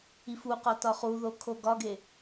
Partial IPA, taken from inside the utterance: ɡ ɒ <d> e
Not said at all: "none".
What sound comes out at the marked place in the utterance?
ɡ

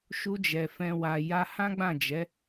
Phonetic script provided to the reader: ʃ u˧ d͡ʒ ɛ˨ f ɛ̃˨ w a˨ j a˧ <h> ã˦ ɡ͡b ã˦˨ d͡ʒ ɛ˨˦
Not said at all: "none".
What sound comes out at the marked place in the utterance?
h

